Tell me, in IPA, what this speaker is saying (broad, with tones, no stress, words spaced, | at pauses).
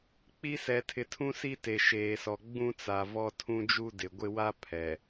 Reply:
k͡pi˦ sɛ˨tʰɪ˨tʰũ˦si˦ te˨ʃeː˨sɔ˨ ɡ͡bũ˦t͡sa˨vɔ˦ tʰũ˦d͡ʒu˦dɪ˨ɡʷɪ˦ wa˦ pʰɛ˨